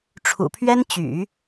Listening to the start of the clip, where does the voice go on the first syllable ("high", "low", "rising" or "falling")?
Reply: low